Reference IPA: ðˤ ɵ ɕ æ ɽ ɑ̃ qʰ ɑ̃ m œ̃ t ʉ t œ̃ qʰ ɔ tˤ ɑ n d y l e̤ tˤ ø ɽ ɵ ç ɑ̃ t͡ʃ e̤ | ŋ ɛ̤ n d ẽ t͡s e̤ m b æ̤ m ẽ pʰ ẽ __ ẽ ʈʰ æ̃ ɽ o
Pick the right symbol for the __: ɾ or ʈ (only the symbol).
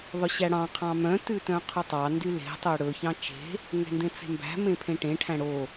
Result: ʈ